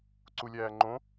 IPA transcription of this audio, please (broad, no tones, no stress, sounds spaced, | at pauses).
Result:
ǀ u lʲ æː ŋ͡ǃ õ